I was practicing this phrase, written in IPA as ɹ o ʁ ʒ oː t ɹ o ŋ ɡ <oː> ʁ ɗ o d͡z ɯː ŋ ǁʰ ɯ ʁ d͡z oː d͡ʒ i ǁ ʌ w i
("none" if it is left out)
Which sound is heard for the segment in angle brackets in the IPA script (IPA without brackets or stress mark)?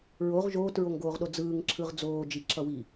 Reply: oː